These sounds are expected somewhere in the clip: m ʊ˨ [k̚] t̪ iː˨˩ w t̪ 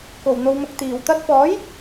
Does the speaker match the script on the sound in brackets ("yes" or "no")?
yes